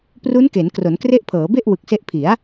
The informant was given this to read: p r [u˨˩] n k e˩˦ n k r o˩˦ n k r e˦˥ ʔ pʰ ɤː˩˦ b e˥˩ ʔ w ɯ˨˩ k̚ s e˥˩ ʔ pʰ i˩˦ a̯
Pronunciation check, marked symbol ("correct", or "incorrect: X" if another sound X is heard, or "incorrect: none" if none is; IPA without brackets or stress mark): incorrect: u˦˥